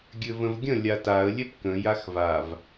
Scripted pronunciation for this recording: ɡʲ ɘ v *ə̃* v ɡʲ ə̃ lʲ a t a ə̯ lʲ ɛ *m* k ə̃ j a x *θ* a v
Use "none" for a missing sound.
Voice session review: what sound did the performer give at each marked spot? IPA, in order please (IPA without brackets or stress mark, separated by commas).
ə̃, p, v